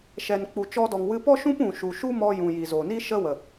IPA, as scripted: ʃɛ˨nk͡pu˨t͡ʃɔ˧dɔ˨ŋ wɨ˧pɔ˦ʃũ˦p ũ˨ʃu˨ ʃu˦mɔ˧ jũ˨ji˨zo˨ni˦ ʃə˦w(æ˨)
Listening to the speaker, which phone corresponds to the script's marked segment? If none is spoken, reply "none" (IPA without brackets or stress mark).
ə˨